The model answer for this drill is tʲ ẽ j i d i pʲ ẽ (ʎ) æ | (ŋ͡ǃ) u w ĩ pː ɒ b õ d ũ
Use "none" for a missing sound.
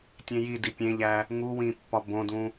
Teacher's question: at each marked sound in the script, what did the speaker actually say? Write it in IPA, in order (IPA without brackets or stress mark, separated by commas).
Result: ʎ, ŋ